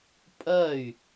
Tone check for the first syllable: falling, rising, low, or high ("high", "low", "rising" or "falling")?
falling